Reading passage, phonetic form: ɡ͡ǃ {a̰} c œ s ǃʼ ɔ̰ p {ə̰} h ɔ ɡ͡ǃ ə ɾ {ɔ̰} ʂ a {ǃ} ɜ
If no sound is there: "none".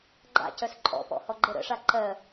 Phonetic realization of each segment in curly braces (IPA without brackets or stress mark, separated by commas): a̰, ɔ̰, ə̰, ǃ